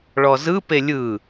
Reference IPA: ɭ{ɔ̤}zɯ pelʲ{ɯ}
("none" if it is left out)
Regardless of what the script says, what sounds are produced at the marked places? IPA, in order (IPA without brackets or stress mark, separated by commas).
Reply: ɔ, ɯ